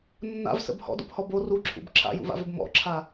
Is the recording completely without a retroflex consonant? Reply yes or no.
yes